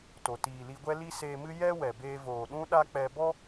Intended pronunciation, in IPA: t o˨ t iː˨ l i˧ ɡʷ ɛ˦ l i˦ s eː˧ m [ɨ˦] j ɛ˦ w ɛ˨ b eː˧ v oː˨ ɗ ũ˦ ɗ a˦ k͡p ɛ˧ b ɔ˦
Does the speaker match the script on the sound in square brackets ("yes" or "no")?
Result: yes